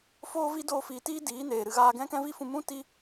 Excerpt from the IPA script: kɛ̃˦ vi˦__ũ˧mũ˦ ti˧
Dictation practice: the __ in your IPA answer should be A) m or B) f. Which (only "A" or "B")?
B